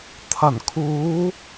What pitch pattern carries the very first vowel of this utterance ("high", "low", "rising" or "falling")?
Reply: low